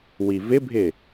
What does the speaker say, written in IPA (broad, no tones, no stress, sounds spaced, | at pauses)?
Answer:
w i v ɪ bʱ ɪ